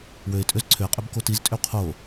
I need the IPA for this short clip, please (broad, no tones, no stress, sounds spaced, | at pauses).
w ø ɪ̯ tʼ ø z ǀʰ ʏ ə̯ qʼ ø b k o t i z tʼ ʏ w qʰ o